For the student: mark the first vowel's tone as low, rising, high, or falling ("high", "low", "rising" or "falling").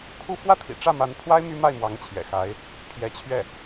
falling